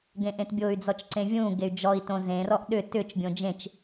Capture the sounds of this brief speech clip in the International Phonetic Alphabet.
ɡ ẽ ʔ ẽ t bʲ o y̯ d͡z ɔ t͡ʃ ǀ ẽ vʲ ũ ɡ e y̯ d͡ʒ ɔ i̯ t õ z ẽ r ɔ ʔ ɗ ʏ t ʏ t͡ʃ bʲ õ d͡ʒ ẽ t͡ʃ

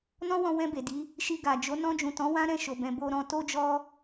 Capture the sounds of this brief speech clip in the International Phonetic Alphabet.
n ɔ̃˦ w ɔ̃˧ w ɛ̃˧ b e˨ d i˨˦ | ʃ i˧ ɡ a˨ d͡ʒ o˨˦ n ɔ̃˧ d͡ʒ ũ˨ t ɔ̃˨˦ w ã˦ ɾ ɛ̃˦˨ ʃ o˨ b ɛ̃˨ b o˧ ɾ ɔ̃˧ t o˦ d͡ʒ ɔ˦

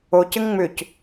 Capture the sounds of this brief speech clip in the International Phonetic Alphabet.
o c ɘ ŋ ŋ͡m ʏ c

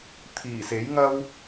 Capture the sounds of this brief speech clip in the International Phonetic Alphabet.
t̪ʰ iː˨˩ s e˨˥ j ŋ ɐ˥ w

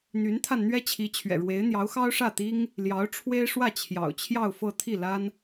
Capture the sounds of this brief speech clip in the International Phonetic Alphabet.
n̪ y˧˥ n t̪ʰ a˧ n n̪ ɥ ɛ˥ t͡ɕʰ i˧˥ t͡ɕʰ ɥ ɛ̰˨˩ ɻ w e˧˥ ɪ̯ n̪ j ɑ˧˥ ʊ̯ x ɑ˥ ʊ̯ ʂ ä˥˩ t̪ i˥ ŋ | l j ɑ˧˥ ʊ̯ ʈ͡ʂʰ w e˥ ɪ̯ ʂ w ä˥˩ t͡ɕʰ j ɑ̰˨˩ ʊ̯ t͡ɕʰ j ɑ˥˧ ʊ̯ f ɤ˥˧ t̪ʰ i˥˩ l a˥ n

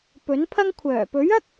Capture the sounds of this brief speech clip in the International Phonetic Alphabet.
p ɵ˨˥ n pʰ ɐ˥ ŋ kʷʰ œː˨˩ p ɵ˨˥ ɥ ɐ˥ k̚

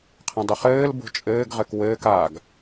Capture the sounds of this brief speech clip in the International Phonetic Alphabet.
qʰ ə̃ dˤ ʏ χ ɘː l b o̤ t͡ʃʼ ɘː ɡ ʁ ɘ k w ɘː k a ɡ

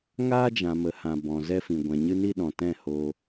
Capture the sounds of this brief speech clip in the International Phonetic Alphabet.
ŋ aː˦ d͡ʒ ã˨ m ə˨˦ h ã˨ b ɔ̃˨ z ɛ˧ f ĩ˨ ɡʷ ɛ̃˨ ɲ ɨ˧ n i˧ ɗ ɔ̃˨ t ɛ̃˦˨ h oː˧

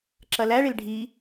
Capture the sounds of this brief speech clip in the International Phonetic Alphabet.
ǁ ɐ l æ ɭ e l ɖʱ i

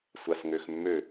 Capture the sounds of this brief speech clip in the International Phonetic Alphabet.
sʷ a s ŋ ø x mː ø

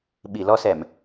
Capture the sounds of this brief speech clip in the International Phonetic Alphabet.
ɓ i˨˩˨ l ɔ˧ s ɛ˨˩˨ m

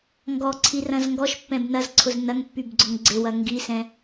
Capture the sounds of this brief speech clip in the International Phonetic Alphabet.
ŋ ɡ ɔ ǀʰ i r ɐ̃ z ŋ ɡ ɔ ʃ pː ɛ̃ b n ɐ z ǀʰ ʊ z n ɐ ŋ pː y b ɡ͡ǀ ʊ ŋ ɡ͡ǀ ɪ w ɐ ŋ ɡ i s ɛ̃

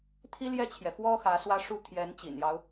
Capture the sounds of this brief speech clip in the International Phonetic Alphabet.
t̪ʰ i˥ l j ɛ˥˩ t͡ɕʰ j ɛ˩ f w ɔ˥ x ä˧˥ s w ä˥ ʂ u˥ t̪ʰ j ɛ˧˥ n t͡ɕ ḭ˨˩ n j ɑ˦ ʊ̯

